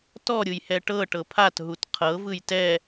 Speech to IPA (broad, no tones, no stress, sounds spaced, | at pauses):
t ɔ ɾʲ ɯ j h ɛ ʈ ɤ ʈ ɤ pʰ a t ɦ u t qʰ ɤ v ɯ j t ɛ